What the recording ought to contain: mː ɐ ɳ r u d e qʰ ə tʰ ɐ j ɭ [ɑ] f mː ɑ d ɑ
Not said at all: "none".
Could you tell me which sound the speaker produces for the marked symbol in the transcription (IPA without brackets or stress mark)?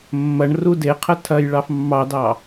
ɑ